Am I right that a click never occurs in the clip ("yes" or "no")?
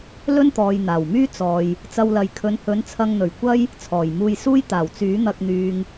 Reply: yes